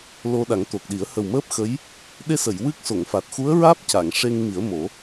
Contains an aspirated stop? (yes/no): no